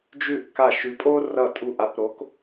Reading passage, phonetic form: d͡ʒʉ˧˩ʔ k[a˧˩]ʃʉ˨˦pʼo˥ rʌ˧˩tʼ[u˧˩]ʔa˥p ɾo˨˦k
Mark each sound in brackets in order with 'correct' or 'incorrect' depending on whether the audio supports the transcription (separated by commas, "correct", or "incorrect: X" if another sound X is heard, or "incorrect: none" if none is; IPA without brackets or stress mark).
correct, correct